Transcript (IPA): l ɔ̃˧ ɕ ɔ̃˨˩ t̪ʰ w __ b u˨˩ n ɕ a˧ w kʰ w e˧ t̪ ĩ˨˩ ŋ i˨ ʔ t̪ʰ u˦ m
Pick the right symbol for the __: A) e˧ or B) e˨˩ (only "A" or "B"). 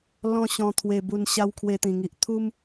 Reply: B